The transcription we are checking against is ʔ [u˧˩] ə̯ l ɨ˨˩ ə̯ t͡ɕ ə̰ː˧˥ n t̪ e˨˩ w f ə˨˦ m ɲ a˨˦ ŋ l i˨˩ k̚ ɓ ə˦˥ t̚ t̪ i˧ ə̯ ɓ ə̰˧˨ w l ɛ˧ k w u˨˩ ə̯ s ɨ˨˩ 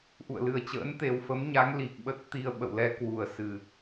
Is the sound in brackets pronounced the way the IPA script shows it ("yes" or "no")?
no